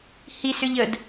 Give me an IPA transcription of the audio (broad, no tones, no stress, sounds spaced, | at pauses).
h i s ʏ ʎ ə d